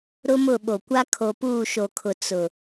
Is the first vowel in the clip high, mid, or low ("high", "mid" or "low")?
high